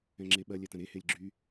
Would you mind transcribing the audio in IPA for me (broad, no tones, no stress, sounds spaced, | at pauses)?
ɛ̃ ŋ͡ǁ e ɓ ɐ lʲ ɛ t ɐ̃ ɾ e h e lʲ ɡ͡ǁ y